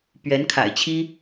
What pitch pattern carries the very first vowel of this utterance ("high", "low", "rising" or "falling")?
rising